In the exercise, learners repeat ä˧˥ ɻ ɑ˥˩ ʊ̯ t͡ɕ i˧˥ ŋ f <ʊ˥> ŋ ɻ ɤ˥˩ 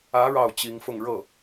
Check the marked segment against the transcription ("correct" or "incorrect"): incorrect